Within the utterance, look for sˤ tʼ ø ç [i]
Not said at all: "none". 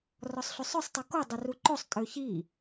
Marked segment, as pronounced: i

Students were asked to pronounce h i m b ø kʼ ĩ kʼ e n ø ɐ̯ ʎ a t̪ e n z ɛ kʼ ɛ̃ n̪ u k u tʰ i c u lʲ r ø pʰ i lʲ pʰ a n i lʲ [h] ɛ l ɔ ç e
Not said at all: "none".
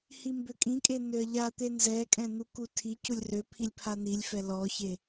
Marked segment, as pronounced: f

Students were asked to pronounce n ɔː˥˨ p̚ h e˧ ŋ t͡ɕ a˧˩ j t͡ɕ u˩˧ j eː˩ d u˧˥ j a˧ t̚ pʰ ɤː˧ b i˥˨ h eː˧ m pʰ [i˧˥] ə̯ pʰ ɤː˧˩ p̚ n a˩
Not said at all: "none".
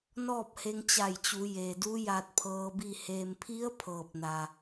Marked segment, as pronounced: i˧˥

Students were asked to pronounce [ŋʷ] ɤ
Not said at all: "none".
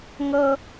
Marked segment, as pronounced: ŋ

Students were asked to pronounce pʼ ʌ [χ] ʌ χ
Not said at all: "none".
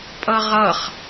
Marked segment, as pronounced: ʁ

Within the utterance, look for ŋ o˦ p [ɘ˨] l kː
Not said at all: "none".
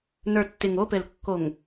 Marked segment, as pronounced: ɘ˨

